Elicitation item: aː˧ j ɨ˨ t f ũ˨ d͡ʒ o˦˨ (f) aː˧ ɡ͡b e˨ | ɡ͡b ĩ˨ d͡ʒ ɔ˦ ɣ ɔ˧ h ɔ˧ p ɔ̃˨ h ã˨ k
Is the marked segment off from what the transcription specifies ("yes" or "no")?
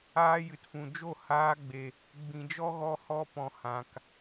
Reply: yes